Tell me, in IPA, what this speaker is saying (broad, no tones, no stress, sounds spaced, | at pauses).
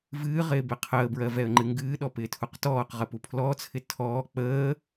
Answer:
v ɨː ʁ ɪː b ɪ qʰ əː b ɹ ɜ v ɛ ə̯ ŋ͡ǃ ɨ ŋ ɡ ɨː ɗ ɔ p ɪː tʰ u q t ɔː q ʁ ə p u pʰ l ɔ t͡sʰ ɪ tʰ ɔː k͡p əː